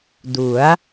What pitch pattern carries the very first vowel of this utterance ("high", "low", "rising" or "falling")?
rising